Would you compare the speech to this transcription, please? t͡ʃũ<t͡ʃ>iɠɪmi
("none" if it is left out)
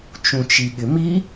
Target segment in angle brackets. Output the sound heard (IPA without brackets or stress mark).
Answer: t͡ʃ